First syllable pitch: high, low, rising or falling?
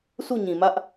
falling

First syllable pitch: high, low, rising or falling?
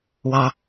low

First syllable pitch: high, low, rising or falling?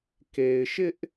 low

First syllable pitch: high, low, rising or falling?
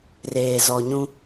low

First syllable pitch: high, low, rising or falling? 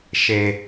high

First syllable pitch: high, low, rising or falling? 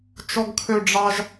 high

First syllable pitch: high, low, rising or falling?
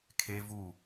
high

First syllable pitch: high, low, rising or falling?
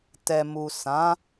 low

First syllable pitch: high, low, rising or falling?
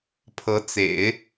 rising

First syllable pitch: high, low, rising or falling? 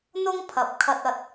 high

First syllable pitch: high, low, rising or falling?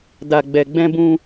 low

